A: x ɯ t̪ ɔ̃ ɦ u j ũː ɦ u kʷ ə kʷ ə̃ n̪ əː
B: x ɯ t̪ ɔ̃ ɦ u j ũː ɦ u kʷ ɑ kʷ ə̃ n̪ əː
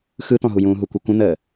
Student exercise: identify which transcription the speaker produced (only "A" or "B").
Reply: A